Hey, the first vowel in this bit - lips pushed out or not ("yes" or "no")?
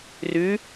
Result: yes